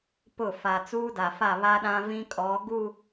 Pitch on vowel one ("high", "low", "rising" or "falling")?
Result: falling